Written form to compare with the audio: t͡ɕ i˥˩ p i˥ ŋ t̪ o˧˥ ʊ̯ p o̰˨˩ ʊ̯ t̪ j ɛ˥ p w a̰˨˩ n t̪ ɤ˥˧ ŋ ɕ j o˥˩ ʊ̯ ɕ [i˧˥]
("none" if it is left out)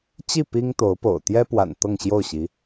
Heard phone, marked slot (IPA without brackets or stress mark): i˧˥